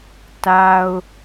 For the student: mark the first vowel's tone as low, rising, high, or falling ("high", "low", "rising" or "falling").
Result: high